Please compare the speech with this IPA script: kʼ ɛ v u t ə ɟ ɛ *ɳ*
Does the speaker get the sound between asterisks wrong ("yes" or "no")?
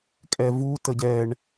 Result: no